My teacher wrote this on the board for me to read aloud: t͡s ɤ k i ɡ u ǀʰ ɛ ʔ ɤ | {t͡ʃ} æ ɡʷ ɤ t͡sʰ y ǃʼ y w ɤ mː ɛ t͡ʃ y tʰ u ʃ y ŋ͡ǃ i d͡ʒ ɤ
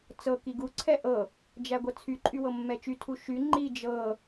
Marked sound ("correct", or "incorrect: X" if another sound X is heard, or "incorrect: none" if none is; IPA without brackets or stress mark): incorrect: d͡ʒ